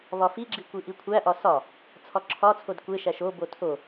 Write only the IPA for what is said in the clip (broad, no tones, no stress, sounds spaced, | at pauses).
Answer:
β ɒ f i ɡ͡ǁ i kʷ i ʔ i kʷʰ æ ʔ ɒ s ɒ | t͡sʰ ɒ ǁʰ ɒ t͡sʰ o d kʷ e ʃ æ ʃ o b o tʰ o